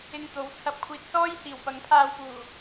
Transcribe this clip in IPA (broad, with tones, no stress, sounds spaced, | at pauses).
ɪ˧ ŋ t̪ o˨˥ w t͡sʰ ɐ˨ p̚ kʷʰ iː˨ t̚ s ɔː˥ j h iː˨˩ w p ɐ˨˥ ŋ pʰ aː˧ w p uː˨˩